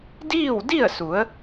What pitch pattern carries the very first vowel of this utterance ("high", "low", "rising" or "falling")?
falling